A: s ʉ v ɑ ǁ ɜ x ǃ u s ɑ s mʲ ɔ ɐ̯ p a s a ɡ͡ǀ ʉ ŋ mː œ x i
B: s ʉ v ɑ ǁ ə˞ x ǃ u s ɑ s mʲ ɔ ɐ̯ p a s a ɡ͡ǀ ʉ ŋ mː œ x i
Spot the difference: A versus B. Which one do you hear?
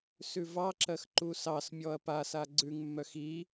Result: A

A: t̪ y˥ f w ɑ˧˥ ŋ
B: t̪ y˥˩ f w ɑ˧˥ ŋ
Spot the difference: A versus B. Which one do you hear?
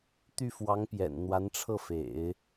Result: B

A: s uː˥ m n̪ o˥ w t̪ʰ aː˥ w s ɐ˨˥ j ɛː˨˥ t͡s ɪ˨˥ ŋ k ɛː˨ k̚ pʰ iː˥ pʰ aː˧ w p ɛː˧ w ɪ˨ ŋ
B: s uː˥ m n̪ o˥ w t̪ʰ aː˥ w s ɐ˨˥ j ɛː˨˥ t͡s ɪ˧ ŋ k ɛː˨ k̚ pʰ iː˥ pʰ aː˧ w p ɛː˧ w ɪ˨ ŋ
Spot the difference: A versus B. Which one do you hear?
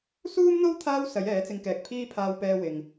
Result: B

